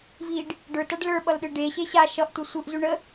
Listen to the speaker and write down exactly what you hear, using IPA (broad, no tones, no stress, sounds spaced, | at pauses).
v i ɖ | ɖ ə˞ t a ɖ l ə˞ ɓ ʌ l ɗ ɯ ɖ e ɕ e ɕ a ʃ ʌ ʔ tʷ ʌ sʷ ɯ ʔ z u ɳ ə